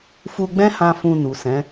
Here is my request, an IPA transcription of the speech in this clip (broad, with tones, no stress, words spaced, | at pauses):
fu˧ɡ͡bɛ̃˦hã˧ fũ˧nu˨sɛ̃˨˦